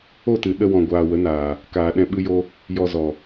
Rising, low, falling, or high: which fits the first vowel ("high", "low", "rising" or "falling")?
falling